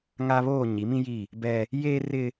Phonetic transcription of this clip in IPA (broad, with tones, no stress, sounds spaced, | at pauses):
ŋ a˦ β oː˦˨ ɲ i˨˦ m ĩ˦ j i˦˨ | b ɛ˦ | j eː˦ r ɪ˦